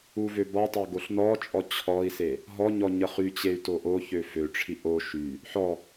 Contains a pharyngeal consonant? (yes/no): yes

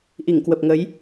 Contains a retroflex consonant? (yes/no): no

